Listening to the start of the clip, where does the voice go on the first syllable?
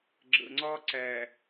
low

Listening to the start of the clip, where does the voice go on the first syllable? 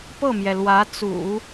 falling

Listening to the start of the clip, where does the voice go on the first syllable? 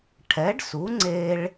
rising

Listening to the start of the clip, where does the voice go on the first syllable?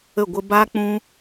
falling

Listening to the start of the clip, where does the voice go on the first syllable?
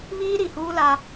high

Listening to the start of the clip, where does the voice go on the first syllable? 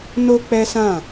high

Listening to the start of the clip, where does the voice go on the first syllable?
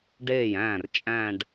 falling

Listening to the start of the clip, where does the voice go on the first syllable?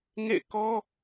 falling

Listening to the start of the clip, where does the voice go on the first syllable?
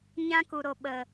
high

